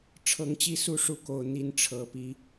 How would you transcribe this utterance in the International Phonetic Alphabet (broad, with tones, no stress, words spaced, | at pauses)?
ʈ͡ʂʰɤ˨˩ŋt͡ɕi˥˨ su˥˨ ʂu˦ko˨˩ʊ̯ n̪i˥˨nʈ͡ʂʰɤ˨˩pi˦